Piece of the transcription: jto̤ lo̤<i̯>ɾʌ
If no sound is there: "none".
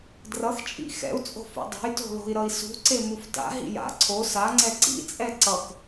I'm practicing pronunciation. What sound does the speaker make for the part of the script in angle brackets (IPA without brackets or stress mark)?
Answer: i̯